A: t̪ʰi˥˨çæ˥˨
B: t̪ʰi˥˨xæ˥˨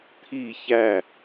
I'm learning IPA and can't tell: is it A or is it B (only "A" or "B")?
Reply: A